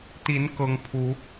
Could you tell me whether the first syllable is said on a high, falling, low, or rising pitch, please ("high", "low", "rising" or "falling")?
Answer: rising